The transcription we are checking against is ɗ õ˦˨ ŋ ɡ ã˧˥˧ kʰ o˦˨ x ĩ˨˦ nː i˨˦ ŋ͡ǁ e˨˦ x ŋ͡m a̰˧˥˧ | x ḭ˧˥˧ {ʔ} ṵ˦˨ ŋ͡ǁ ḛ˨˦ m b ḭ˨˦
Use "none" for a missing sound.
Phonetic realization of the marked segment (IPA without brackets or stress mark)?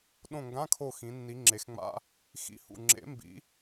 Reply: h